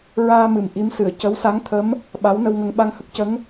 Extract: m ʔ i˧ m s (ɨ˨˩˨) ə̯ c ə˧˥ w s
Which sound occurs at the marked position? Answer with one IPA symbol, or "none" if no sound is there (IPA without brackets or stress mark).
ɨ˨˩˨